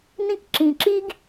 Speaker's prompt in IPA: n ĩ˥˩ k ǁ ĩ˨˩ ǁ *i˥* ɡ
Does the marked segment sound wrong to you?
no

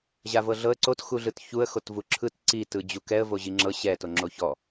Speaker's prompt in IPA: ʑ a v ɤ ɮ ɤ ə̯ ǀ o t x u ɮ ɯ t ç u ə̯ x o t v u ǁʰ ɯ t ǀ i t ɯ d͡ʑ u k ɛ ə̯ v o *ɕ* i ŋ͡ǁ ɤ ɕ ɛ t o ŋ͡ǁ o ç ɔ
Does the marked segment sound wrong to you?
yes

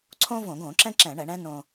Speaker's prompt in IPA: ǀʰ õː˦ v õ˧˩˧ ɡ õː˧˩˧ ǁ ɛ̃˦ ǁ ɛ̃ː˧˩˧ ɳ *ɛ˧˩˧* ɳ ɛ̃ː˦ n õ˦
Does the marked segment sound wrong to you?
no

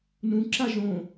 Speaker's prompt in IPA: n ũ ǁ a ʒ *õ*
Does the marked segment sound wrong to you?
no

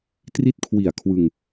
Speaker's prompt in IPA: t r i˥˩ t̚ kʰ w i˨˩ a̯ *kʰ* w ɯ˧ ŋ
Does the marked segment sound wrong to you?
no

